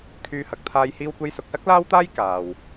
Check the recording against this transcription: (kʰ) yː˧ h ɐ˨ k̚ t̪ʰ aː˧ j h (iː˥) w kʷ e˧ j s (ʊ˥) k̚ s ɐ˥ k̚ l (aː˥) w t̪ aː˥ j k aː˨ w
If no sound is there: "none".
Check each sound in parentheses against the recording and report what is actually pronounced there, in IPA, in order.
kʰ, iː˧, ʊ˨, aː˥

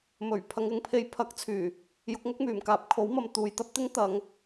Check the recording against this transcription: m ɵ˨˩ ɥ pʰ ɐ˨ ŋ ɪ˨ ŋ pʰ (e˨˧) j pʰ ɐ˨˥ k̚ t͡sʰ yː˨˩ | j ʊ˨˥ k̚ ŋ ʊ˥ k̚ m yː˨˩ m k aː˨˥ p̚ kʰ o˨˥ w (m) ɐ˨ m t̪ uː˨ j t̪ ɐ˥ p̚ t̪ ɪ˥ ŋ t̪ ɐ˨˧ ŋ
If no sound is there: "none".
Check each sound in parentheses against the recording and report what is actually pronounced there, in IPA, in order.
e˧, m

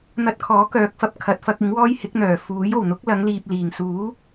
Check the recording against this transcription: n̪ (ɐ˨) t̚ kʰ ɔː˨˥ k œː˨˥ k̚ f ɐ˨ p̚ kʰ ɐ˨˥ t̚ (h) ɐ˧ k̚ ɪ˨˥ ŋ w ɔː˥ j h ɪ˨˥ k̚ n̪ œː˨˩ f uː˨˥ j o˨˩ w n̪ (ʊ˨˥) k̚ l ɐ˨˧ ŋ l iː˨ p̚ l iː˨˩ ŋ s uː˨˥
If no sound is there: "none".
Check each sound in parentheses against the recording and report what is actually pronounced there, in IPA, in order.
ɐ˧, f, ʊ˨˥

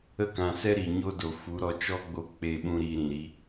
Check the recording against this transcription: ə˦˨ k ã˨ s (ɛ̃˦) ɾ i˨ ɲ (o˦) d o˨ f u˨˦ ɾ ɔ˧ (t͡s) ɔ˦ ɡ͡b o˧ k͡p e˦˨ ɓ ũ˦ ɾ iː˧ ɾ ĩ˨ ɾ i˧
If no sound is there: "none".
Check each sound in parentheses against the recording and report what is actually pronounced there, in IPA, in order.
ɛ˦, o˦, t͡ʃ

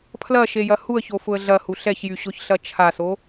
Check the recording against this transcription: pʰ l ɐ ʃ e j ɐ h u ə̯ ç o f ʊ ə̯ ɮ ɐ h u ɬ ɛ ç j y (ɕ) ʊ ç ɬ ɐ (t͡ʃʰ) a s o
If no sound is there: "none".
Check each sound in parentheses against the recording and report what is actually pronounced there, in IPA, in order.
ɕ, t͡ʃʰ

